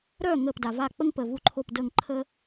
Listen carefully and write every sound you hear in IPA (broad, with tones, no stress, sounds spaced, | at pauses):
ɾ œ˧˩ ŋ əː˧˩ p d a˩ v a˧˩ k͡p ə˦ ŋ p əː˩ v u˧˩ ǃʰ o˧˩ p d əː˧˩ ŋ ǃʰ əː˦